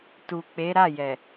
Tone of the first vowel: low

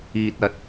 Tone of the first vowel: low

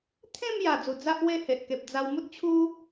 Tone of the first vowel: falling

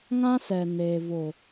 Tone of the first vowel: high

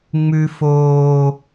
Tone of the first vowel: high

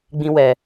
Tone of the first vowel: high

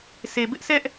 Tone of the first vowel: low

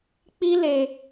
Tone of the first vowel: high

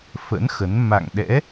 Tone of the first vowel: rising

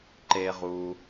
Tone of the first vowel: high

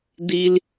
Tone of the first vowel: high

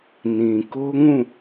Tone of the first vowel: low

